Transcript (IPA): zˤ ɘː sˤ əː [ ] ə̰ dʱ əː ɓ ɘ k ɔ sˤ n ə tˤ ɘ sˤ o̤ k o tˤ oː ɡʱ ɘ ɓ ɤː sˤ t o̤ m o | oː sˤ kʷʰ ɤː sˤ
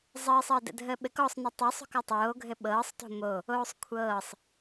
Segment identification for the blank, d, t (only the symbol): d